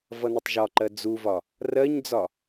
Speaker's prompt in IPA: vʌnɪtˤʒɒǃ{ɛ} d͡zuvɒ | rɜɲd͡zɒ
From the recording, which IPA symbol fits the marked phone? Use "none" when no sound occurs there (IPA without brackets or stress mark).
ɜ